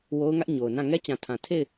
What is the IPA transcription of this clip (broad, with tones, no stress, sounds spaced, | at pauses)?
w o˦ ʊ̯ ŋ ä˦ ʔ ɲ o˨ ʊ̯ n ã˦˨ ŋ ɛ˦ t͡ɕ ã˨ tʰ ã˨ tʰ e˦˨ ɪ̯